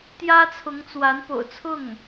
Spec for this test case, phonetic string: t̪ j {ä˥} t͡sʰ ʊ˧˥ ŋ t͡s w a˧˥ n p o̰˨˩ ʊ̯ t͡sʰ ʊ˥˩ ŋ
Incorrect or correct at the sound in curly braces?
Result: correct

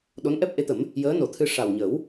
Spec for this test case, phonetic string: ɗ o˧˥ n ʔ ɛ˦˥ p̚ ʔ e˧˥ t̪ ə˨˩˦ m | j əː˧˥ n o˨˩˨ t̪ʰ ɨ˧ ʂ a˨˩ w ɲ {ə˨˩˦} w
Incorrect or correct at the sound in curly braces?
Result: correct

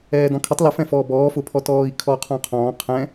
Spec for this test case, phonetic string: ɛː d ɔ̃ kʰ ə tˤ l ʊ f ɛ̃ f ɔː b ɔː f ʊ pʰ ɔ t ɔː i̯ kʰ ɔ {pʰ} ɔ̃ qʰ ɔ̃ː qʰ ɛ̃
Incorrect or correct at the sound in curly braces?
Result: incorrect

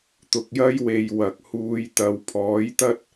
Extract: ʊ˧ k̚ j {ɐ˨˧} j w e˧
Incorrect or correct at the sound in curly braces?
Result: incorrect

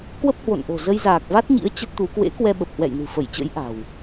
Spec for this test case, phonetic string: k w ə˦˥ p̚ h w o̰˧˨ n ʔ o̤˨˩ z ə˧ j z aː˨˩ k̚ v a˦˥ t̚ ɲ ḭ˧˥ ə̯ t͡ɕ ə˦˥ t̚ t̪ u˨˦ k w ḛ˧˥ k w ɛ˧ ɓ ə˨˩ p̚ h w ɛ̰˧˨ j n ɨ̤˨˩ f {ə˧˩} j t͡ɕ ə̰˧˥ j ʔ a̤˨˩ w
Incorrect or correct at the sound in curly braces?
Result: correct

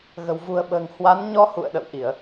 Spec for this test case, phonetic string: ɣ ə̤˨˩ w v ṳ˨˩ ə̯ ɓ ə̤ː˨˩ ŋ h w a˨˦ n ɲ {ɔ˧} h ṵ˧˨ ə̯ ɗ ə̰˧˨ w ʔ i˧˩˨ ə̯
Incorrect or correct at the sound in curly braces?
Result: correct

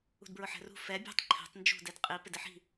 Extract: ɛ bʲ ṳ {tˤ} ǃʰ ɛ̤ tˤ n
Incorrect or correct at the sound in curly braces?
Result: correct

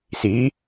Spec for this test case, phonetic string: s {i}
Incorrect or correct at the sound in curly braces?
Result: correct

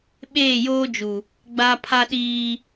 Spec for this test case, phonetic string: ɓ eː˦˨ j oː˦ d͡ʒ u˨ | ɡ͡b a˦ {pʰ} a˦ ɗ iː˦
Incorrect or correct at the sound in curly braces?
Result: correct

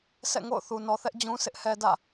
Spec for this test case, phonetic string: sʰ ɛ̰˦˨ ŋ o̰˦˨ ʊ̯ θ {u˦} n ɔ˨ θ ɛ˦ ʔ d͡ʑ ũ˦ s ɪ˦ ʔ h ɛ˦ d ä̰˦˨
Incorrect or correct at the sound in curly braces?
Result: incorrect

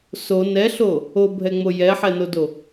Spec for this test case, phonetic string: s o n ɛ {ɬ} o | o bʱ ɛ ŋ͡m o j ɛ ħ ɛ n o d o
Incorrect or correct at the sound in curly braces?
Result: correct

